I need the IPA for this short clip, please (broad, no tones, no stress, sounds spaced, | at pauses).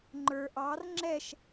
ŋ͡ǃ ə˞ ʔ ɑ r ŋ͡ǁ ɛ ʃ